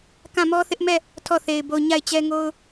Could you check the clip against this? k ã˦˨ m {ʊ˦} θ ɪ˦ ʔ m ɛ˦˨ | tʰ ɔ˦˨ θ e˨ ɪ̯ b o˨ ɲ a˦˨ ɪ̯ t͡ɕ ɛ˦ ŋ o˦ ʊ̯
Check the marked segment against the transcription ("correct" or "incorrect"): incorrect